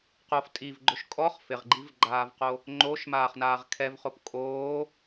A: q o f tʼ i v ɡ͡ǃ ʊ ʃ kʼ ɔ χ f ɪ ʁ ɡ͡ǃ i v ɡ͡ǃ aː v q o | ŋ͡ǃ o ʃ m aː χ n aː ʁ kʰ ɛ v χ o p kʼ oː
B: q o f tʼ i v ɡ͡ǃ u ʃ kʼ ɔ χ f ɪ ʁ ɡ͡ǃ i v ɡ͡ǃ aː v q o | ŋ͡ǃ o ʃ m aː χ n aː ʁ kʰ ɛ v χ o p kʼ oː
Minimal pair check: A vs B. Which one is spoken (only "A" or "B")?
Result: A